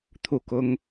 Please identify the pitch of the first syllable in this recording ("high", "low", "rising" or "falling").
falling